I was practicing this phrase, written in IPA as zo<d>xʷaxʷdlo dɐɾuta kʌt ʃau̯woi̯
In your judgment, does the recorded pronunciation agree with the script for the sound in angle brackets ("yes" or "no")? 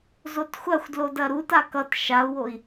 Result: no